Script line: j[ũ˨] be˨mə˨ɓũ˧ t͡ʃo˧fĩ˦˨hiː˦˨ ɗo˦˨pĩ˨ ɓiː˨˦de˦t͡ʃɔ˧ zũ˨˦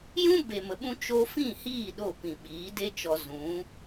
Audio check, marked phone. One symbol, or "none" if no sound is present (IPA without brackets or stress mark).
ũ˦